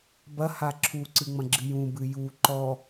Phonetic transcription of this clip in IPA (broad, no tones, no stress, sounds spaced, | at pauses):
b ɐ h a ǁʰ u ǀ ɨ ŋ͡m ɐ̃ ɡ͡ǁ ɨ j ũ b ɨ j u ǃ ɔ